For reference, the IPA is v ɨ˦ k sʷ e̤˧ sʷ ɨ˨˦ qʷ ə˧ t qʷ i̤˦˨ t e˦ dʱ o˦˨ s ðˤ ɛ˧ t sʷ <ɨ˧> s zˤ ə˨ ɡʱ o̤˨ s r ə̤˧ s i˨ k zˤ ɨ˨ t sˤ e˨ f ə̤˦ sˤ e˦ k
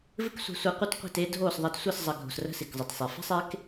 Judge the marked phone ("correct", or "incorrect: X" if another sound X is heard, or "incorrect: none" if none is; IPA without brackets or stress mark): incorrect: ɨ˦˨